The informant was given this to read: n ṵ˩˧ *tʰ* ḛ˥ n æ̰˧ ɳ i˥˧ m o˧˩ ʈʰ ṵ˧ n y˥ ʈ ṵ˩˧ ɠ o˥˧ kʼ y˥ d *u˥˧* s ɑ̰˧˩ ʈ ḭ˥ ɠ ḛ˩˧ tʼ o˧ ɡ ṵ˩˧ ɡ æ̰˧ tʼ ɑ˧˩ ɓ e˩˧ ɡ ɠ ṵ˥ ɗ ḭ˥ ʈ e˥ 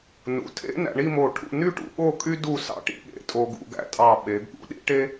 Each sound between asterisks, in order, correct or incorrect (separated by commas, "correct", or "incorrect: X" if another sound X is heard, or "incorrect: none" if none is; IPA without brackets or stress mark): correct, correct